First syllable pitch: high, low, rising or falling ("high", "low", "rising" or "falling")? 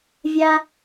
high